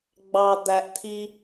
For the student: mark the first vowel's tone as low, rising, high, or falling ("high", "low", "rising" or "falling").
low